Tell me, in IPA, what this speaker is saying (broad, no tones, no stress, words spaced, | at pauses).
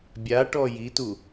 bʲa ʈɔjitu